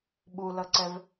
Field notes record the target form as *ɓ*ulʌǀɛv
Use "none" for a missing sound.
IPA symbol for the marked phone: ɓ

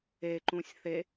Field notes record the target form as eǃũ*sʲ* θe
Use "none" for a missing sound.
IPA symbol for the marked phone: sʲ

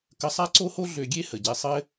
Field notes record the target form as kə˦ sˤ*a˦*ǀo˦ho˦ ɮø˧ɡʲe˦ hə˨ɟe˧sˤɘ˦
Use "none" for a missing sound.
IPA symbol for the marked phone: a˦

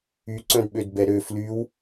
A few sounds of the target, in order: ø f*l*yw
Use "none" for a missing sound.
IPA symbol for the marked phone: l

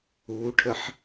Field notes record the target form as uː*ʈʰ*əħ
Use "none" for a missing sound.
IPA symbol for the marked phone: ʈʰ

